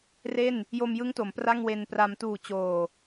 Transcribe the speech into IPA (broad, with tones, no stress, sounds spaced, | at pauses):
r e˥˩ n | j o˧ m j ɯ˦˥ ŋ t o˩˦ m p r a˥˩ ŋ w e˧ n p r a˧ m t uː˨˩ t͡ɕ oː˨˩